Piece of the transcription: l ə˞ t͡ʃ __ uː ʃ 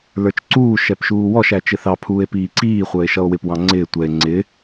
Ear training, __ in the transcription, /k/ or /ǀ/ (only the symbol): ǀ